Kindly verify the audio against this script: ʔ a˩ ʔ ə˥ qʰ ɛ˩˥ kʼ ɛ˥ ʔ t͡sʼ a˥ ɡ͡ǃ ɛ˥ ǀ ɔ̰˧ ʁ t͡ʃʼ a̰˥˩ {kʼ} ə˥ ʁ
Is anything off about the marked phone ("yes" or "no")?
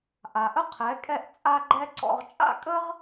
no